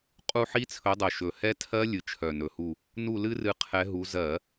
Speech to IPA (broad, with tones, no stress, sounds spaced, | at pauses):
qʼ u˦˨ ħ i˦˥ t͡sʰ ɵ˨˦ dˤ œ˨˩ ʃ ɵ˨˩ h ɛ˦˥ tʰ ɜ˦˥ lʲ ɨ˨˦ t͡ʃʰ œ˨˩ n ɵ˨˩ h u˦˨ | n u˦˨ l ɨ˦˥ r ɨ˨˦ qʰ ɛ˨˦ ɦ u˨˦ z ɜ˧˩˧